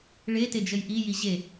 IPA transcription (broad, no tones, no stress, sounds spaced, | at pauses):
ɭ e t e d͡ʒ ə j ʔ i j i ʑ e